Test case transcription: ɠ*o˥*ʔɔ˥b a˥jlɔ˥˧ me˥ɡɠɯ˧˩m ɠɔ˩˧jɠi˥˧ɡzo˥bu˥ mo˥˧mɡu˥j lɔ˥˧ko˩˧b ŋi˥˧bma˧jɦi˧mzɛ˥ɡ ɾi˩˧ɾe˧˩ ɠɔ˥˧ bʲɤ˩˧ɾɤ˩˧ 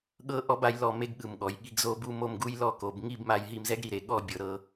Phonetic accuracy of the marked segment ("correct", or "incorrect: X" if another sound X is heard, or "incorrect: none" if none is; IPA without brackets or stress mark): incorrect: ɤ˥